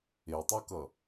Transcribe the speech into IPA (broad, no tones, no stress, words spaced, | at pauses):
etˤokʌ